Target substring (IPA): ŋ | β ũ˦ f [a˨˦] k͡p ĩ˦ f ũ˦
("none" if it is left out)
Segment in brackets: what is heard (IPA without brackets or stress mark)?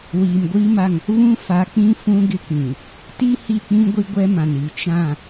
a˨˦